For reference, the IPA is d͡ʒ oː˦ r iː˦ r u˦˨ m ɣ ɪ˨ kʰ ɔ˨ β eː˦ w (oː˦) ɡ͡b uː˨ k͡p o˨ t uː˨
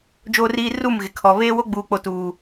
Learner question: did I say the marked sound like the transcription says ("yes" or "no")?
no